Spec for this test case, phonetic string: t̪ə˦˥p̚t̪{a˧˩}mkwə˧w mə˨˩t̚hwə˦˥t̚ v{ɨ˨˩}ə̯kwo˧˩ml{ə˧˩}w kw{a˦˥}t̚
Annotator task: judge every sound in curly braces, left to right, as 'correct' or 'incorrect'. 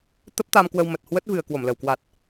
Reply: incorrect: a˧, correct, correct, incorrect: a˨˩

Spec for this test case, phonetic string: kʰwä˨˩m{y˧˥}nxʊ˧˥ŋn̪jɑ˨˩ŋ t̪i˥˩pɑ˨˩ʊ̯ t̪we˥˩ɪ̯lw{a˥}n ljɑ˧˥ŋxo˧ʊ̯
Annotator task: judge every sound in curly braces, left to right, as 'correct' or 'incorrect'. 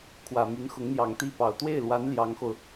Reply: correct, incorrect: a˧˥

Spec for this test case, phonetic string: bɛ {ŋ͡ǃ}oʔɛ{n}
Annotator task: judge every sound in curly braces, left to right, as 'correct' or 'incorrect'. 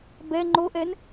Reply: correct, correct

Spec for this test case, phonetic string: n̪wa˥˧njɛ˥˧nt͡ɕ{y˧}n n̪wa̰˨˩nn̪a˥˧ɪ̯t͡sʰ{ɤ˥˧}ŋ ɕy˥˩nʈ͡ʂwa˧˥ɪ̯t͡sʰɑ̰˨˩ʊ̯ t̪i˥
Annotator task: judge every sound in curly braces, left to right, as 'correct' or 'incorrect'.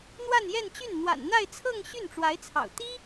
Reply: incorrect: y˥˩, correct

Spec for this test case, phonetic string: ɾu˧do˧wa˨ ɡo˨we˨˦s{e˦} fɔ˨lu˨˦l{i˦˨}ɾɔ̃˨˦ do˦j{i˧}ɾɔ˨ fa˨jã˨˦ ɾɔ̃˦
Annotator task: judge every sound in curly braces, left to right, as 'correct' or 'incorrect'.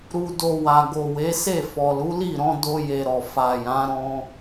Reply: incorrect: e˦˨, correct, incorrect: e˧

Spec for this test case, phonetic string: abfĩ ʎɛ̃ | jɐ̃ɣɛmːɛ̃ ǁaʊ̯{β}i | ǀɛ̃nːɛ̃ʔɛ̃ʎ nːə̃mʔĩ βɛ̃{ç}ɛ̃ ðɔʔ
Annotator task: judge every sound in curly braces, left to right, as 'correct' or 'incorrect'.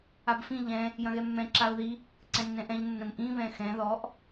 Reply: incorrect: ð, incorrect: x

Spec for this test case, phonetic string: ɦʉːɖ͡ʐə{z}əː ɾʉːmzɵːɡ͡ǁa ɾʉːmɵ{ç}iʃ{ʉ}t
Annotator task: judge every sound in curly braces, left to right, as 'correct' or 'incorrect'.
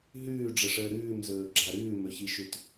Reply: incorrect: ʂ, correct, correct

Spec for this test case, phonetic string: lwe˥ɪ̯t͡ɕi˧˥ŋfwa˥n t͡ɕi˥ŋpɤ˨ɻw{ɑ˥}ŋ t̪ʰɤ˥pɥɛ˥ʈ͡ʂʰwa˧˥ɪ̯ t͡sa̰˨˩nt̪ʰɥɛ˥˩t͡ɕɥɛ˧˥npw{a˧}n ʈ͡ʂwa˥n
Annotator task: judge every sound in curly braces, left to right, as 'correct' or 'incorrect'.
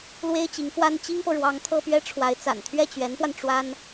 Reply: incorrect: ɑ˧˥, correct

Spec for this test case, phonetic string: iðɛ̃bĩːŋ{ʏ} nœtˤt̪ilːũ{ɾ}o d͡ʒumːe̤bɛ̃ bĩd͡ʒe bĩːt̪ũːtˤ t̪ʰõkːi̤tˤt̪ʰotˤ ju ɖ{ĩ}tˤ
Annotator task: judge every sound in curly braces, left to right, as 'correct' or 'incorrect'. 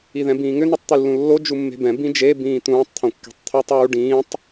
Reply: correct, incorrect: lː, incorrect: ĩː

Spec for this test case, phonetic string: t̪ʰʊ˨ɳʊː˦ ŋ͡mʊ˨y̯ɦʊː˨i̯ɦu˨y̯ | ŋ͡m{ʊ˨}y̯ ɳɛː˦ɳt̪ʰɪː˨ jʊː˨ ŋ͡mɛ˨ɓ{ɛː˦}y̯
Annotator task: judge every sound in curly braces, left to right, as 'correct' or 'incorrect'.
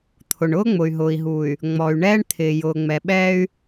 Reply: incorrect: ɔ˨, correct

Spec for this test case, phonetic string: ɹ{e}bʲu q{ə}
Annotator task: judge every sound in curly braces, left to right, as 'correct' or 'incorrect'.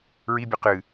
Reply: incorrect: i, incorrect: ɨ

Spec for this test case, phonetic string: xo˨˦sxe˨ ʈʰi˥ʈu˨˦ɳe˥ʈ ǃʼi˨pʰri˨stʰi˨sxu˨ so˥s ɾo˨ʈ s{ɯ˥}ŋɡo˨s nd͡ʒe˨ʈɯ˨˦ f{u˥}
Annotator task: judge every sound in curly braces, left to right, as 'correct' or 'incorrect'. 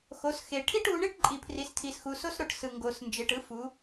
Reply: incorrect: ɯ˨, incorrect: u˨˦

